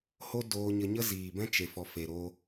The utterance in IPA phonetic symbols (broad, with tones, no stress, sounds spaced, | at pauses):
h o˦ d oː˧ ɲ ə˧ ɲ ə˦ z iː˨ b ɛ̃˦ t͡ʃ e˨ f ɔ˨ f e˨ ɾ o˧